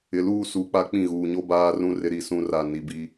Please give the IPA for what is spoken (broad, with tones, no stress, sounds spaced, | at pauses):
ɪ˨ l uː˦˨ s uː˨ k͡p a˦ k͡p ĩ˦˨ ɣ uː˨ ɲ o˦ b aː˦ r ũ˦ r ɪ˦ ɾ i˦˨ s ũ˦ r a˦˨ n i˨ b i˦